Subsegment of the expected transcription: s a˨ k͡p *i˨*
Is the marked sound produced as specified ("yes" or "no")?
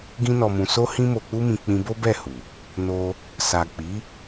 no